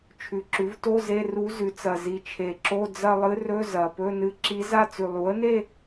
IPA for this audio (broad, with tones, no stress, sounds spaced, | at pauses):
t͡ʃʰ ʉ˨˩ ǁ ʉ˩˥ v t o˧˥˧ z e˧˥˧ r u˧˥ z ʉ˩˥ t͡s ɐ˨˩ z i˨˩ t͡ʃʰ e˨˩ ǁ o˧˥˧ d͡z ɐ˥˧ lˠ ɨ˧˥ r ɵ˧˥˧ z ɐ˨˩ p ɵ˧˥˧ n ɨ˧˥ ǁ i˧˥ z a˥˧ t͡s ʉ˨˩ lˠ u˩˥ ə̯ n e˥˧